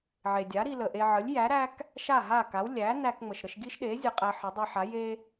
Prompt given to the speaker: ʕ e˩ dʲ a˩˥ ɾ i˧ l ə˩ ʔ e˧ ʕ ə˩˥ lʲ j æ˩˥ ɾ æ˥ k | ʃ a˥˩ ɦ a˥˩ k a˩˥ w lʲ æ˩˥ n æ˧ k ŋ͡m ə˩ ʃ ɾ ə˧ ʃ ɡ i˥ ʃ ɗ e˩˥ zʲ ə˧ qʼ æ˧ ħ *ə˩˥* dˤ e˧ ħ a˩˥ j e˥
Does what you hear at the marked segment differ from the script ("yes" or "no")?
no